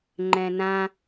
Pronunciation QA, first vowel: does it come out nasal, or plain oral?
nasal